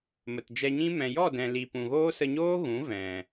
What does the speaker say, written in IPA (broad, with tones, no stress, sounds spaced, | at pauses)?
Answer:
m ə˨ t d͡ʒ ɛ˧ ɲ ĩ˦ m ɛ̃˨ j ɔ˦˨ d ɛ̃˨ l i˨ p ũ˨ ɣ oː˦ s ə˧ ɲ oː˦ ɣ ũ˨˦ v ɛ̃˨